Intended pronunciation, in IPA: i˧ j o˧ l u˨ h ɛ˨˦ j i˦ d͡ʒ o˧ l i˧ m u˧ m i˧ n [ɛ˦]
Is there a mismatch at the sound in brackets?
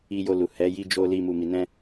yes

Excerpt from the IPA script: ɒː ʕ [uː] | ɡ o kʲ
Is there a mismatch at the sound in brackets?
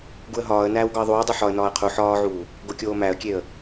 no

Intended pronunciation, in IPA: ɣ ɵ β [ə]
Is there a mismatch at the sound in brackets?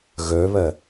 no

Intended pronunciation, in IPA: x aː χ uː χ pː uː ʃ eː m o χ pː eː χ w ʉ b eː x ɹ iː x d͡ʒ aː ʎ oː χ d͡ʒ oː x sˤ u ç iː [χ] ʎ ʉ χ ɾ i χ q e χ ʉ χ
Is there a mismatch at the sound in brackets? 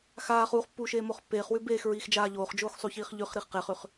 no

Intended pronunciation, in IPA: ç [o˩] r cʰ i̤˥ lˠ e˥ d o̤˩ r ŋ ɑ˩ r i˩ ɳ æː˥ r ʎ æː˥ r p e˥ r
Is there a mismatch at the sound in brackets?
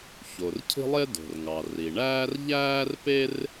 no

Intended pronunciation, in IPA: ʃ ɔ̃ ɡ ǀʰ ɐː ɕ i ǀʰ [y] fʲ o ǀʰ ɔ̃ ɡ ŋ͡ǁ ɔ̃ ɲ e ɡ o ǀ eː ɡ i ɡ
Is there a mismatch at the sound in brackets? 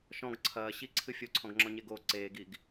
yes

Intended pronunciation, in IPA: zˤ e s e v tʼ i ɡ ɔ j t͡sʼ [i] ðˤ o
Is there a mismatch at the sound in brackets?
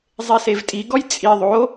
no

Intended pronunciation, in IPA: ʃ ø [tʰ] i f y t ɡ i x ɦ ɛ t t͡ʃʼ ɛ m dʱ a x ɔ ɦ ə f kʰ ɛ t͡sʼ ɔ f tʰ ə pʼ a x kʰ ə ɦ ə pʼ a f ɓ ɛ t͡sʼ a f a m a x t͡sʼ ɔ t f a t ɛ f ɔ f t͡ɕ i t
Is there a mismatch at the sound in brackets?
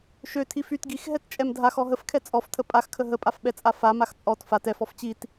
no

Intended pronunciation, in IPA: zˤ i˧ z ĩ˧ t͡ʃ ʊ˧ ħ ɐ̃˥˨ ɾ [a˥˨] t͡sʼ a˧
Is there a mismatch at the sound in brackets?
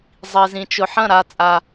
no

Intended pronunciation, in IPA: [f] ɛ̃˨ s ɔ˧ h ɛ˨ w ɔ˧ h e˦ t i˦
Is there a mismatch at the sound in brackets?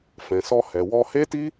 no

